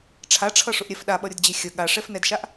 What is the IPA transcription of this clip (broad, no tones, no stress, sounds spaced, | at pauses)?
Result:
ʈ͡ʂʰ a ʈ͡ʂʰ ʌ ʂ ʊ ʔ ɾʲ ɛ f ɗ a ɓ ʌ ɾʲ ʊ d d͡ʑ e xʲ ə ɠ a ʂ ɛ f n ɛ d ʃ a ʔ